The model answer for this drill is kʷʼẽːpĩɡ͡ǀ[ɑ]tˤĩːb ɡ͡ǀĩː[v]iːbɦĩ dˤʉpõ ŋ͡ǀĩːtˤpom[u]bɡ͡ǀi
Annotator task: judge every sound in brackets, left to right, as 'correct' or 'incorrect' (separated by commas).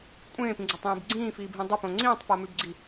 incorrect, incorrect, incorrect